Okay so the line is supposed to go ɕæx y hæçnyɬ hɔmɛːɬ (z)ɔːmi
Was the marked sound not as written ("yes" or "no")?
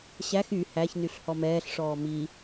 yes